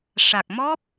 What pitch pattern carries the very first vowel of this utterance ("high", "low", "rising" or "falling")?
low